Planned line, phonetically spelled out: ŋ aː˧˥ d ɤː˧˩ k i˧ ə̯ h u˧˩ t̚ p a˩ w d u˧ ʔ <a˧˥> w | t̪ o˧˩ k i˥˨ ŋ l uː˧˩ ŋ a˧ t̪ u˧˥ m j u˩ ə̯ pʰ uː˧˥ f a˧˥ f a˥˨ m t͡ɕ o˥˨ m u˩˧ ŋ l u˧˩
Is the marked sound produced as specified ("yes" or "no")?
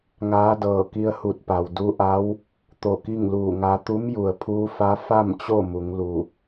yes